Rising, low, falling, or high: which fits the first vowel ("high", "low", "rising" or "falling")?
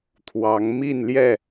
rising